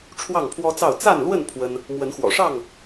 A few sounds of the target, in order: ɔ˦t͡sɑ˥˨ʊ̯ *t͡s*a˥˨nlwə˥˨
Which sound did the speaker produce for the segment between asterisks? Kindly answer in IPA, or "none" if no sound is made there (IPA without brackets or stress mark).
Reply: t͡s